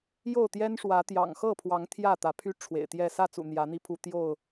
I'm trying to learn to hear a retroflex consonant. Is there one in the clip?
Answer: yes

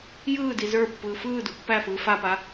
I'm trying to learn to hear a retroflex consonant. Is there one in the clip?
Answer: no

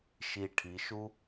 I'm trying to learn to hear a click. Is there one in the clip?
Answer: no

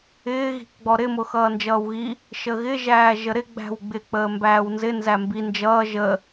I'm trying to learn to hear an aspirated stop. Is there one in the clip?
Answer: no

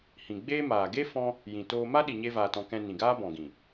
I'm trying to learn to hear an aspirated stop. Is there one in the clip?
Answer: no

